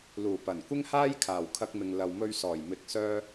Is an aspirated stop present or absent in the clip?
present